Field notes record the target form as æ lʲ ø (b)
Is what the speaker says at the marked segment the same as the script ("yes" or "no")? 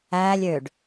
no